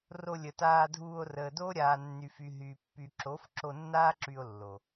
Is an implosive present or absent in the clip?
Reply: absent